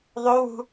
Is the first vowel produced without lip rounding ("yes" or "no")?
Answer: no